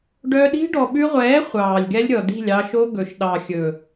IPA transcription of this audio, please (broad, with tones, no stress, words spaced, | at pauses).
ɖœ˧ɗi̤˦ ɖɔ˨ɓʉ˧ʁʷɛː˨˦ χʷɑː˨lʲɡɛ˦lʲɾʲɔ˨ di̤˦˨lʲɑ˧ʃo˦ ɡɵ˨ʃ ɗɑ˨xʲɵ˨